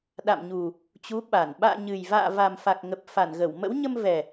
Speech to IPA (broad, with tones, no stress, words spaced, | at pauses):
ɗa̰˧˨mɲu˨˩ | t͡ɕu˨˦ɓa˧˩n ɓa̰ː˧˨ɲɨ˨˩jva̰ː˧˨ va˨˩mfa˨˩k̚ ŋə˨˩p̚fa˧˩nɣə˧˩w mə̰˧˥wɲə˧mvɛ˨˩